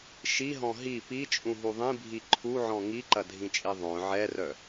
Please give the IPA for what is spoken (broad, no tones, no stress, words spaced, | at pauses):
ʃiɦɔ̃ ɦi pit͡ʃʼũɦu ðˤĩbʱi ǃʰuʕɔ̃ ŋiǃɐdʱĩt͡ʃʼi ðˤœ̃ ʕɛrœ